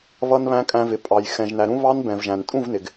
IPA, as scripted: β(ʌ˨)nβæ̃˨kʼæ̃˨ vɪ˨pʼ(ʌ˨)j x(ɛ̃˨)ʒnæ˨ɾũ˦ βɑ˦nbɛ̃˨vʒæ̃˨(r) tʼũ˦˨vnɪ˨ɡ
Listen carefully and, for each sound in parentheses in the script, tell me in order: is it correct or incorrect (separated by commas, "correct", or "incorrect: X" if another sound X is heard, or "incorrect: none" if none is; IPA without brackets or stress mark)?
correct, incorrect: ɑ˨, correct, incorrect: n